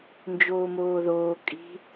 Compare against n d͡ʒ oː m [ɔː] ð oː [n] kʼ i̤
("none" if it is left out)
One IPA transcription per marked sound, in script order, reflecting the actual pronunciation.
oː, none

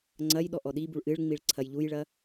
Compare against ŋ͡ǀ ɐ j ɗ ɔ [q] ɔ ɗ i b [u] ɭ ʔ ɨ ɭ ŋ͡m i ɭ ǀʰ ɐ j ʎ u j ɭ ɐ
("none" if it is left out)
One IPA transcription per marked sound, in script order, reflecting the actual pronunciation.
ʔ, u

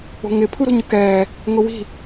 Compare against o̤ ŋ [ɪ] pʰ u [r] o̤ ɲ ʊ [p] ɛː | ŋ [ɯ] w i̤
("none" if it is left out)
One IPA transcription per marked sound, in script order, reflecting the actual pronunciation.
ɪ, ɾ, k, ʊ

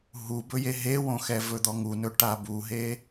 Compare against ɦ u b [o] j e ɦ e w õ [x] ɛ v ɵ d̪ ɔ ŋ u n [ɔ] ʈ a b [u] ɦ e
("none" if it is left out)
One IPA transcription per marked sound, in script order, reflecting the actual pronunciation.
ɵ, x, ɵ, u

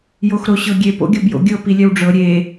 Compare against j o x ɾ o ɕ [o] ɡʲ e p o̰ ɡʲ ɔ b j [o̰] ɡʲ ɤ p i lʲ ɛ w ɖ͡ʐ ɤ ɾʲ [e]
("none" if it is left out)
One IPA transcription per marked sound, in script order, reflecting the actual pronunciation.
ɤ, o̰, e

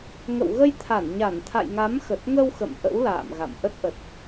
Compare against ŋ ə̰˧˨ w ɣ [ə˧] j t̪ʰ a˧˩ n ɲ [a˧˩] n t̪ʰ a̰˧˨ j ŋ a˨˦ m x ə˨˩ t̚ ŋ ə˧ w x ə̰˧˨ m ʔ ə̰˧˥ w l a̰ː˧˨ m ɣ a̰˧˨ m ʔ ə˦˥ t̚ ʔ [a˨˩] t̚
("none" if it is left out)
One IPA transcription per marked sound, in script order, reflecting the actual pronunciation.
ə˧, a˧˩, ə˨˩

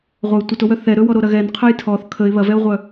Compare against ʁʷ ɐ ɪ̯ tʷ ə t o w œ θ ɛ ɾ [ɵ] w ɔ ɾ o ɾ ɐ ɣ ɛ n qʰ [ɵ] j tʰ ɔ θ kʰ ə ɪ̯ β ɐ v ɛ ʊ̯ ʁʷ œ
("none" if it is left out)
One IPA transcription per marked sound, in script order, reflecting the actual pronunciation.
ɵ, œ

